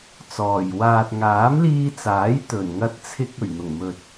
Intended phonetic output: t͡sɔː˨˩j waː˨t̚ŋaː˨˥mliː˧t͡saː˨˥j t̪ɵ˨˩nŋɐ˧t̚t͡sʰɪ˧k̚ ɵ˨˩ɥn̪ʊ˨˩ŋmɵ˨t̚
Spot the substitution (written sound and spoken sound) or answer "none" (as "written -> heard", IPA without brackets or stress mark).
none